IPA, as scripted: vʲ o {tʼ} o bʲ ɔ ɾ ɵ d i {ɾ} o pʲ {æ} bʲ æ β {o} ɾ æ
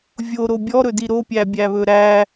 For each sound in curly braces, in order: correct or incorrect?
incorrect: ɾ, correct, correct, incorrect: ɵ

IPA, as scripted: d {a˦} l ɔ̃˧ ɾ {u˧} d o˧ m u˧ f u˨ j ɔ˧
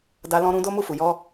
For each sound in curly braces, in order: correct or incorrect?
incorrect: a˧, incorrect: ũ˧

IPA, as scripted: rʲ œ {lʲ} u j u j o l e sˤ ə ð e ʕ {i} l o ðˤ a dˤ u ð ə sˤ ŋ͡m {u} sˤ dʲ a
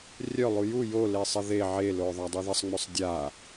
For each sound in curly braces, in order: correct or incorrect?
incorrect: lˠ, incorrect: e, incorrect: ø

